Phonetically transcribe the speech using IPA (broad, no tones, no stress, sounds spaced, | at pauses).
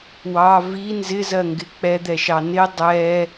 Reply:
w ɑ v i n z ɪ z ɜ ŋ ɡ ɪ k͡p ɛ d̪ ɛ ʃ ɑ n ɪ dˤ ɛ